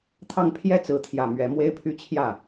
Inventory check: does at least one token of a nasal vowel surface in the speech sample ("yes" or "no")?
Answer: no